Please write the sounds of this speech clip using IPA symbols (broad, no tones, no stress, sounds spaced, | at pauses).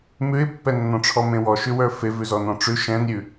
m ʉ ɪ̯ pː ɛ nː ɔ̃ ʈ͡ʂʰ ɔ m ẽ w ɔ ʃ ʉ w ə˞ f e v ʉ z ɔ n ɔ̃ ʈ͡ʂ ʉ ʃ ɛ̃ n ɾʲ ʉ